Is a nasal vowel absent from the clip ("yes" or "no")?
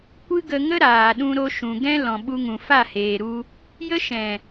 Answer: no